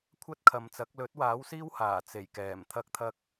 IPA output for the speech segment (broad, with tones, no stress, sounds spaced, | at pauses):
kʷʰ ɐ˥ t̚ kʰ ɐ˨ m t͡s ɐ˨˥ k̚ l ɵ˨˥ t̚ w aː˨˥ w s iː˥ w h aː˨˩ t͡s e˨˩ j k ɛː˨˩ m t̪ʰ ɐ˥ k̚ t̪ʰ ɐ˥ k̚